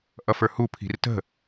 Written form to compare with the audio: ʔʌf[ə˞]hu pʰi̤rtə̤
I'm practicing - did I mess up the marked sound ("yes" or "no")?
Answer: no